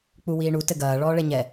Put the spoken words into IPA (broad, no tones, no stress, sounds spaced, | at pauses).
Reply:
k͡p u w iː ɳ u t ɘ ɡ ɐː ɭ ɔː ɭ e ɲ ɛ